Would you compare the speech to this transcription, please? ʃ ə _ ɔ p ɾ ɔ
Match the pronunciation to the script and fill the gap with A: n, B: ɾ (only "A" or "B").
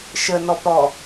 A